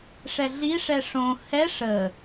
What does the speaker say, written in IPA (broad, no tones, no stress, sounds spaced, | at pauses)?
ʂ ɛ ɮ i ʂ ɛ ʂ õ h ɛ ʂ ə